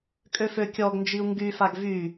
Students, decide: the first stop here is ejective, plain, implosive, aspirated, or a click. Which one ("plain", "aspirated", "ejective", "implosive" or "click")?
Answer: ejective